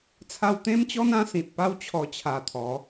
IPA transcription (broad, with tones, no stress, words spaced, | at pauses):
t͡sʰa˧wt̪ẽ˦mt͡ɕɔ˦n ã˦sĩ˨t̚ pa˦w t͡ɕʰɔ˧t͡ɕʰa˨˩t̪ʰɔ˨˦